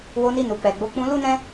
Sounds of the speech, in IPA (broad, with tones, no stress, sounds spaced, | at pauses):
w o˧ n i˧ n u˨ k͡p ɛ˨ ɡ͡b o˨˦ k͡p ũ˧ l u˦ n ɛ̃˦